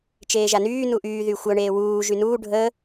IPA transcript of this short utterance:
t͡ʃ eː ʒ a n yː n u ʔ yː ð y xʷ œ ɳ eː w uː ʒ y n uː ɖʱ ə

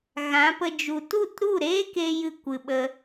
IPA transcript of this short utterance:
ɣ ã˨˦ p ə˧ d͡ʒ u˨ t u˦˨ t ɾ u˦˨ ɾ eː˦ k e˦ j ɨ˧ kʷ ɨ˨ ɓ ə˧

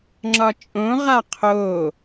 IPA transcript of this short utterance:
ŋ͡ǁ ɒ t͡ʃʼ õ ʁ a qʰ o

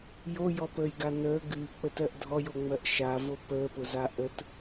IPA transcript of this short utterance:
j o j ɔ p əː j ɡ a n əː ɡ ɨː k͡p ə t ɜ ʔ dʱ ɔ j o ŋ͡m ɜ ʔ ʃ a v o p əː p ʊ z a ʔ ə t

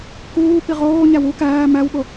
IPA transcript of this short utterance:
k uː p i ʁ oː ɲ æ w u k æː m æ w ɓ o

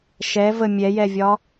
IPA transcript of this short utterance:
ʃ ɛ v ə mʲ ɛ j ɛ vʲ ɒ

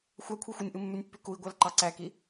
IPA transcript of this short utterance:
xʷ æ kʷʰ e xʷ ɯ nʲ ʔ ɯ mː y nʲ pː y k u i̯ ɡʷ æ l ǃ ɑ ǀ æ k i

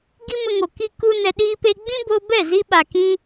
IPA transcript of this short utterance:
ɡ i˦ m ə˧ ŋ o˨ k i˦ k u˦ n ɛ˧ ɗ iː˦ p e˦ ɡ͡b ĩ˦ b o˧ b ɛ˦˨ z i˧ ɓ a˨ k ĩ˧

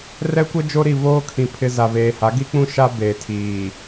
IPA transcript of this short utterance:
r ɛ˦ kʷ ɛ˦ d͡ʒ o˦ ɾ i˦˨ v oː˦ kʰ ĩ˨ pʰ ɪ˦ z a˨ v eː˨ h a˨˦ ɡ i˦ k͡p ũ˦ ʃ a˦ b eː˨ tʰ iː˨

